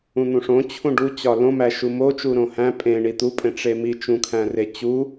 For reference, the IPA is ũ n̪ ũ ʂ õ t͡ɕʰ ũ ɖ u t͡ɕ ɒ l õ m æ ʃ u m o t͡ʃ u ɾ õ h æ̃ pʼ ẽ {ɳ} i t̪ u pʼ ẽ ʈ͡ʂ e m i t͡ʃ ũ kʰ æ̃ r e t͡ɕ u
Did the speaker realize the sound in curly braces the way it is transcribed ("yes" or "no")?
yes